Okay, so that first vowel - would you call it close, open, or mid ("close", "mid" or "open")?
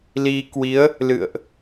close